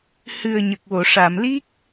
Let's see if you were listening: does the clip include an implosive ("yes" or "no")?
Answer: no